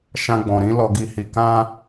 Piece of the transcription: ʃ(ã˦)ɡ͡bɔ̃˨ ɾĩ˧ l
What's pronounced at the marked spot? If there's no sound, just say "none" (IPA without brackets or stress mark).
ã˧